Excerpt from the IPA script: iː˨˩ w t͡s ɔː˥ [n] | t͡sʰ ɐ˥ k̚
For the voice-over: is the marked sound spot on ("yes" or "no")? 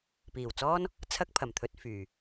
yes